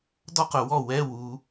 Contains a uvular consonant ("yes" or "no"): yes